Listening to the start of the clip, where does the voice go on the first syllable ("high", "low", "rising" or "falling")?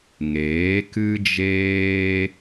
rising